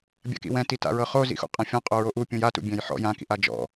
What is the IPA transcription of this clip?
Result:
bʲa̰kḭwɛ̃ti ta̰ɹɤχo zḭxṵqʼɛ̃fʲɔ̃ qʼoɹoʔupʲũj atṵ bʲɛ̃jħɔ̰ jãkḭʔ ad͡ʒɔ̰

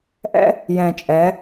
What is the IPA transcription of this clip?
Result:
ʔɛ̰˦ | jɛ̃˨t͡ʃʼɛ˨˦

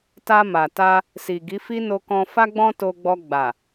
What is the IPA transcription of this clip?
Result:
ta˧ma˨ ta˧ | si˨ ɡi˨˦fi˦ no˧kɔ̃˧ fa˦ɡ͡bɔ̃˦ to˧ɡ͡bɔ˧ ɡ͡ba˨

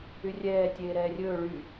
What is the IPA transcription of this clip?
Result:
yrʲɛː tʲeːɾɛːrʲɵː ɭy

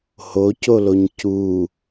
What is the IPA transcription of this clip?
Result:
hocoloɲ cu

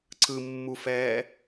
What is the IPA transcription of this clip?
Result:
ǀɯmːufɛː

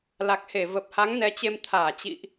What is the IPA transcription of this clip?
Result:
la˨˩k̚he˧˩ və˨˩p̚ha˨˦ŋ nɛ˨˦t͡ɕe˧m t̪ʰaː˧˩t͡ɕḭ˧˨ʔ

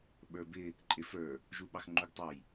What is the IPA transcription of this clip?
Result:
ɓə˞bɪ | ǃʼɪfə˞ | ʒuɓɑxŋ͡ǃuɡtˤɑj

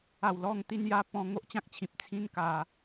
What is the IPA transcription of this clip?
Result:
a˨˩w lɔ˥˧ŋt̪i˦nja˦ pɔ̃˧ ŋo˦ʔt͡ɕã˦k̚t͡ɕʰĩ˨p̚ t͡sʰĩ˦n ka˧

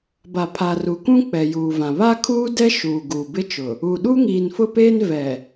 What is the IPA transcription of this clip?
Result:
ba˨pʰa˨ru˨kũ˦ k͡pɛ˨juː˨vã˨ βa˦kʰuː˦dɛ˦ ʃuː˨ɡu˨bɪ˦t͡ʃʊ˨ | u˨ɗu˦ ŋiː˨nfʊ˦peː˦n vɛ˨

